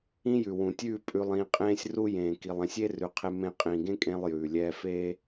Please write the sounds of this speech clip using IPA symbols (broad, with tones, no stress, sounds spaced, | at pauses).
ĩ˦ j ʉ˨ w ũ˨ tʲ ʉː˦˨ pʼ ʉ˧ lˠ ĩː˧ qʼ ẽː˦ sʲ r u˦ j ẽː˨ k i˨ lˠ ẽ˧ sʲ e˦ r ʉ˨ qʰ e˧ m ẽ˦ qʼ ĩː˨ ɡ ẽ˦ kʼ ẽː˧ lˠ j ʉː˨ lʲ ɛː˦ f e˦